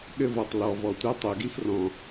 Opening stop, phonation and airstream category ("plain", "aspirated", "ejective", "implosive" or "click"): implosive